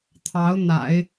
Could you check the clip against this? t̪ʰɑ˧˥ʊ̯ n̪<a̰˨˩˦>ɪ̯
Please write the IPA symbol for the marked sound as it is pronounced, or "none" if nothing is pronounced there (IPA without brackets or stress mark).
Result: a̰˨˩˦